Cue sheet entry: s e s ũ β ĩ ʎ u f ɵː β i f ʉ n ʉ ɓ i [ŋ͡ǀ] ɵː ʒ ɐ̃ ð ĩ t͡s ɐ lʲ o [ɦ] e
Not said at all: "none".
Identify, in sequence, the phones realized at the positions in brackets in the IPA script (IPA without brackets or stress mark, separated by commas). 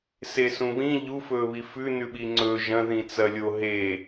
ŋ͡ǀ, ɦ